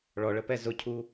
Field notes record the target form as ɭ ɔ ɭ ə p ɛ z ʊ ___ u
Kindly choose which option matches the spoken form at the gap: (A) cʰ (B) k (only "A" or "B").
A